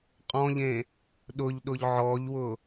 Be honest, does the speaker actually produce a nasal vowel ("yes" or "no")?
yes